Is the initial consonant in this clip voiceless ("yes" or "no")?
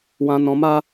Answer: no